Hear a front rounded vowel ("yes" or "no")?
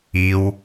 no